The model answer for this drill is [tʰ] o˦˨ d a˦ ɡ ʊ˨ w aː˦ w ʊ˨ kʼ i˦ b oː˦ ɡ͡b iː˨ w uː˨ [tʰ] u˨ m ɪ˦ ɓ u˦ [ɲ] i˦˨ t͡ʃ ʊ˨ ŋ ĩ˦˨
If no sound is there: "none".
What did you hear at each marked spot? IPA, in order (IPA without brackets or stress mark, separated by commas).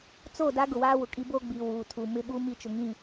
t͡s, tʰ, m